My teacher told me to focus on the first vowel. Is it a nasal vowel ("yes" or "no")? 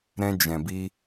yes